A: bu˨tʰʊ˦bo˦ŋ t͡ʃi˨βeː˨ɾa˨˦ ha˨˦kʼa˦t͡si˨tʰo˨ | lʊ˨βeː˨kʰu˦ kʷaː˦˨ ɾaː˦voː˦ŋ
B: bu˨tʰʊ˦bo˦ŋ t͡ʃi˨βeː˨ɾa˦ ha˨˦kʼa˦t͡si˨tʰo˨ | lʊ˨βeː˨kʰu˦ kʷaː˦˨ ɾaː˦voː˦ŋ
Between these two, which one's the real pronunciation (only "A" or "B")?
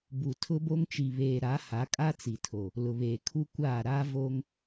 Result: A